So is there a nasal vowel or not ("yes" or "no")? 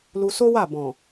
yes